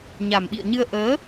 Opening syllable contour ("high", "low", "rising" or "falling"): low